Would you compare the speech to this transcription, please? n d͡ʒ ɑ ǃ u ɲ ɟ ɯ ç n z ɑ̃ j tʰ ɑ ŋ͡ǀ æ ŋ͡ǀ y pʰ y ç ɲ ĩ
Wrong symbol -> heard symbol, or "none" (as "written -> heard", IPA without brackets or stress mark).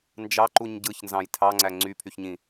none